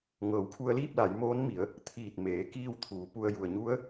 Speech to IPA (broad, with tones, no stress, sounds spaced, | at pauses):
ŋ ɤː˩˧ w kʰ u˧ ə̯ l iː˥˨ p̚ l a˩˧ j m oː˧˥ n m i˩˧ ə̯ | t̪ʰ iː˧˩ t̚ m eː˩˧ k iː˥˨ w t̪ʰ uː˩˧ p u˧ ə̯ j u˩ ə̯ ɲ u˧˥ ə̯